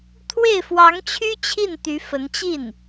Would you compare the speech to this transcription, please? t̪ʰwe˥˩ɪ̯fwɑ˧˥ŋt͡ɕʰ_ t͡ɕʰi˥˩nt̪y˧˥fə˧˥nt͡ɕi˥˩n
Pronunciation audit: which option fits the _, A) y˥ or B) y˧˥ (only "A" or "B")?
A